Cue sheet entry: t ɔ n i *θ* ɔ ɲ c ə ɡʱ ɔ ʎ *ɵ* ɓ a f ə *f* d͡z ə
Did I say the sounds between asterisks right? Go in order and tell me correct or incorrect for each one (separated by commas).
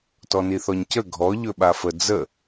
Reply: correct, correct, incorrect